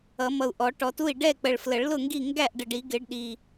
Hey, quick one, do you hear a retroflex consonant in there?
yes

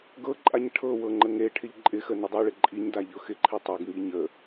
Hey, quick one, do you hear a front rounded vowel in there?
no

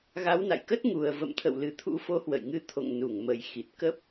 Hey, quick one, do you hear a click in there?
no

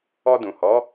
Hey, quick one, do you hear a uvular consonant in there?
no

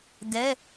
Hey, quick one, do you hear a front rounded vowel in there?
no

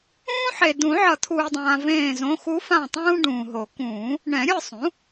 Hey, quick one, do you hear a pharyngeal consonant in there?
yes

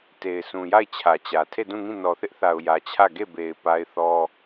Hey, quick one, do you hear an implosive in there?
no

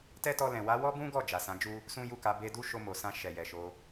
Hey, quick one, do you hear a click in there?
no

